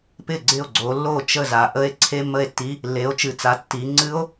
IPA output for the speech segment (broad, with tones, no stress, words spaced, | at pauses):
pɪ˥˩ɡ͡ǀɪ˥˩o̯ɡ͡ǀo˨˦lːo˥˩ t͡ʃə˥˩za˨ʔə˦˥e̯ ǀʰe˧˥˧mːə˥˩e̯tːi˧˥˧ | lːe˨˦o̯t͡ʃɨ˨t͡sa˨˦ tːi˨˦ ŋ͡ǀɨ˦˥o̯